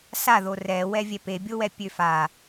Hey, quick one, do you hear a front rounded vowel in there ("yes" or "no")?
yes